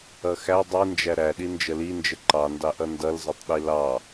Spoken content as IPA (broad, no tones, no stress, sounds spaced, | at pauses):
ʌ x æ dˤ i n d͡ʒ æ ɾ æ ɗ i n d͡ʒ ə l i n d͡ʒ ə ǃ ɑ n d ɑ ʔ ʌ n d ʌ l z ʌ tˤ ɗ i l ɑ